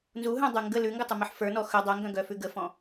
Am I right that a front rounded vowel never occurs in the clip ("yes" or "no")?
no